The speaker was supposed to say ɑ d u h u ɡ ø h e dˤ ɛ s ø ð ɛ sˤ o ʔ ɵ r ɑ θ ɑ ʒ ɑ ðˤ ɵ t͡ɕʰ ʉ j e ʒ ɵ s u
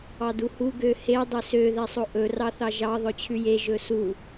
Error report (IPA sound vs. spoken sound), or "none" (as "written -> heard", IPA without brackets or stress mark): none